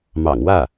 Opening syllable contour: low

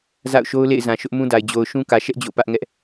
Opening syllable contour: falling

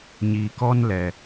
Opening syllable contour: low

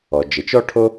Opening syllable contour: low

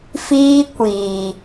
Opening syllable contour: high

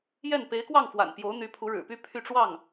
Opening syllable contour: falling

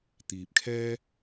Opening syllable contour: low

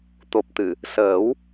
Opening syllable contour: low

